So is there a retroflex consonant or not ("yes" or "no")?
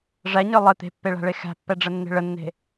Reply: yes